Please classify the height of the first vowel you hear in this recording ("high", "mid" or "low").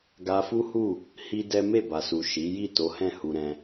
low